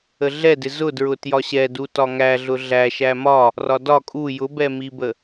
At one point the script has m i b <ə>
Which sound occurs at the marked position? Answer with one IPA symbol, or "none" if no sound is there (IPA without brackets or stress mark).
ə